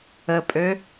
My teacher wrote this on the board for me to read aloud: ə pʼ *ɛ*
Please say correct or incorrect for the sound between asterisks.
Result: incorrect